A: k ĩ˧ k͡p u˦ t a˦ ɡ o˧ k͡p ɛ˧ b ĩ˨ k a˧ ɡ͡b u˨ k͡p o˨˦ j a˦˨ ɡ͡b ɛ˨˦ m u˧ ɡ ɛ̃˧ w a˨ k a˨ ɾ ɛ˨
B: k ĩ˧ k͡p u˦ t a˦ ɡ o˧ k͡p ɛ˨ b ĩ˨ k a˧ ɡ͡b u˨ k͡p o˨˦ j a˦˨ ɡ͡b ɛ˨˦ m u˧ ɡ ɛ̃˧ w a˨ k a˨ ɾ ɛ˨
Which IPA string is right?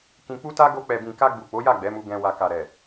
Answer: B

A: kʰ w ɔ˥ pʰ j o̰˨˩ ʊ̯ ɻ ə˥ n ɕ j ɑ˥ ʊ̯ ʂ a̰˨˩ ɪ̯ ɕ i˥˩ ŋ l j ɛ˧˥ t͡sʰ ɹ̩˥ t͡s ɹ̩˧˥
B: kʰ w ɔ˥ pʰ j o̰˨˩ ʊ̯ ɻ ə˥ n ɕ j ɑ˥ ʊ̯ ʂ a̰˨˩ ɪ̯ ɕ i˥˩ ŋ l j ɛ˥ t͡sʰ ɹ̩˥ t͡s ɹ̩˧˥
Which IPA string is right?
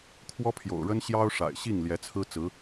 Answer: A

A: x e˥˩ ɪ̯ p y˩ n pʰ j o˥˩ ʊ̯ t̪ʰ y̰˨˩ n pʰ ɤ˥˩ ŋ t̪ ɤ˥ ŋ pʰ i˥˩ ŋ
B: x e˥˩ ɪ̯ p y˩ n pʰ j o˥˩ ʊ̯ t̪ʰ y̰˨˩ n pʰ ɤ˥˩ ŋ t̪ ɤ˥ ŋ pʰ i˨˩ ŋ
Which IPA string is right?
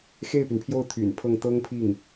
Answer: A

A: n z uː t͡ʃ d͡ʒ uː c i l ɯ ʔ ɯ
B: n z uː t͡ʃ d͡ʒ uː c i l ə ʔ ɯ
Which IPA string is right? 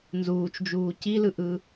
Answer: A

